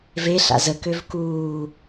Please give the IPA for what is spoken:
v e ɬ a̰ z ə k ø v k uː

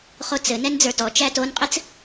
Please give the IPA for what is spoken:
χ o t͡s ɘ n ɛ n d͡z ə˞ t ɔ t͡ʃ æ t o n qʼ ɘ t͡s

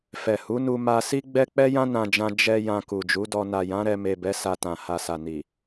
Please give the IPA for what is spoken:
f ɛ˨ h u˨˦ n u˧ m a˧ s i˦ ɡ͡b ɛ˦ k͡p ɛ˦ j ã˦ n ã˧ d͡ʒ ã˧ d͡ʒ ɛ˧ j ã˧ k u˨ d͡ʒ u˨˦ d ɔ˧ n a˨ j ã˨˦ ɾ ɛ˧ m e˨ b ɛ˨˦ s a˧ t ã˨ h a˨ s a˨ n i˨

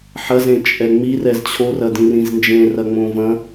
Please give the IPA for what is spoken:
ħ ɐ z ẽ t͡ʃʼ ɛ ŋ͡m i r ɛ z t͡ɕʰ o r ɐ d ĩ r ĩ z n d͡ʒ ẽ r ɐ ŋ͡m õ v ɐ̃

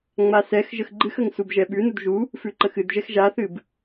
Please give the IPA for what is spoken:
ŋ͡m a s ɛ x ʒ ə x ɡ͡ǃ ɨ x ə ŋ s u b ʒ ɛ ɓ ʉ n u d ʒ u | f ʉ ǃ ə x ɨ d ʒ ɛ x ʒ a θ ɨ b

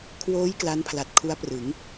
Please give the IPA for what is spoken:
kʰ w oː˦˥ j k l a˦˥ n pʰ l a˨˩ t̚ kʰ u˦˥ a̯ p r ɯ˩˦ ŋ

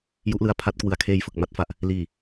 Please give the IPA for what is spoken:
j u˦˥ ʔ l ɯ˧ a̯ pʰ a˦˥ t̚ k w ɯ˨˩ a̯ kʰ eː˧ j f ɯ˨˩ k̚ m a˦˥ t̚ f a˨˩ ʔ | l iː˨˩

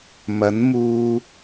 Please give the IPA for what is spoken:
m ɐ˨˥ n m uː˧

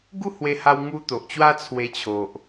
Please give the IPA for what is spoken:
ɡ u˦ h w e˧ h a˧ w ŋ u˧ t̪ o˨ ʔ t͡ɕ w a˦ t͡sʰ w e˧ t͡ɕʰ o˨ ʔ

